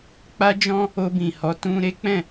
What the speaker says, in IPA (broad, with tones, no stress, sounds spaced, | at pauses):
k͡p a˦ d͡ʒ ɔ̃˦ | o˧ b ĩ˨ h ɔ˨˦ t ũ˧ ɾ e˦ k͡p ɛ̃˦˨